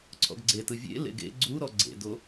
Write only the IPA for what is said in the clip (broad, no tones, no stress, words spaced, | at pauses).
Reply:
ǀʰɔ̰ɡɡ͡ǀetɯ vʲḛ lḛɡḛ ɡ͡ǀuɾɔ ɡ͡ǀḛdo